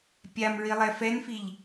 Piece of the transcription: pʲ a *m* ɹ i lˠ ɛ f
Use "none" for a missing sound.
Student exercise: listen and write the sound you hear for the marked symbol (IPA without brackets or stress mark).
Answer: m